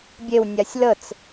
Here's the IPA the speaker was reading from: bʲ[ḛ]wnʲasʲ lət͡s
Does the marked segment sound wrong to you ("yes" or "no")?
yes